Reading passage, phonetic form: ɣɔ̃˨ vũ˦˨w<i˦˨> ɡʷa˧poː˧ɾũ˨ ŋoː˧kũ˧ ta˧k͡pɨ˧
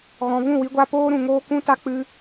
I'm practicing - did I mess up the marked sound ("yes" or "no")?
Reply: yes